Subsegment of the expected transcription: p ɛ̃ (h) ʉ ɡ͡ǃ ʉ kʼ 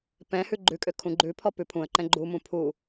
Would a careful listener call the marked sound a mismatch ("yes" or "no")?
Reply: no